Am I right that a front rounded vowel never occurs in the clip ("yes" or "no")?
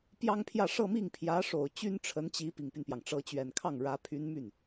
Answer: no